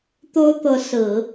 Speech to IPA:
t̪o˥ʊ̯t̪ɤ˧˥ sɹ̩˨˩˦

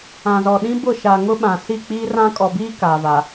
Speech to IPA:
ã˨zɔ˨ɗĩ˦ bʊ˦˨ ʃa˨ŋʊ˦ɓã˨ si˦˨k͡piː˦rã˦ kʼɔ˨biː˦ kaː˨va˨

